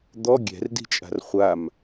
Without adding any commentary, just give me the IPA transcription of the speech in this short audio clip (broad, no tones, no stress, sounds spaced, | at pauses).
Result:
d̪ ɔ ɡʲ ɛ̤ r d i̤ t͡ʃʼ a̤ r χʷ a m